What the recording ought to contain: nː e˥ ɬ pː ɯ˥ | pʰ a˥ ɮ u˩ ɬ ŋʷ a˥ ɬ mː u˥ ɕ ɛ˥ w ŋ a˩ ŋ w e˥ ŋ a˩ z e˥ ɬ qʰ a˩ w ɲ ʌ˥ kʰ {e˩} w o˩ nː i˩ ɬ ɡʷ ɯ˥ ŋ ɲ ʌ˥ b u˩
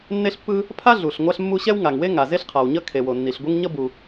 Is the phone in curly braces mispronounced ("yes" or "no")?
no